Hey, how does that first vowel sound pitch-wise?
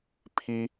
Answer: high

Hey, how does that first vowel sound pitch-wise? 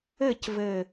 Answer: falling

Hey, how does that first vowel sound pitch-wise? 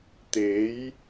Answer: rising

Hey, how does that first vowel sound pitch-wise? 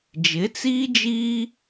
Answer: rising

